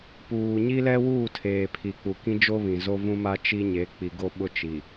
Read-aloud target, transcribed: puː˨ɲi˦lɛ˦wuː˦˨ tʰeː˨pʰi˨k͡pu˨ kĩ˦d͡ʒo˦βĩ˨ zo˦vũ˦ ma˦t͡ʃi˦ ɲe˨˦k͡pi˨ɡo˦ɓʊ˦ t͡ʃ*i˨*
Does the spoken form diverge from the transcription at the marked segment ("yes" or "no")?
no